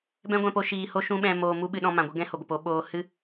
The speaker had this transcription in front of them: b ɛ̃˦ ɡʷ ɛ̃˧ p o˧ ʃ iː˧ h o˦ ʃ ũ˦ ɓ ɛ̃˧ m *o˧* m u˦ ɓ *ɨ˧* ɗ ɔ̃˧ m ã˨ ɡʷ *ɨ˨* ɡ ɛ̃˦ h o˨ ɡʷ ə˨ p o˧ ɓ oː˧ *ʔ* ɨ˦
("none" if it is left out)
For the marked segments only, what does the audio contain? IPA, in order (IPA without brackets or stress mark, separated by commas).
oː˧, ɨ˧, ɨ˧, h